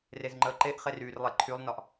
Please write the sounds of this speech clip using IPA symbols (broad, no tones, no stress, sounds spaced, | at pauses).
r e z ŋ͡ǃ əː ǃ e ʔ χ e r yː r lˠ e ǃʰ y lˠ n ɒ ʔ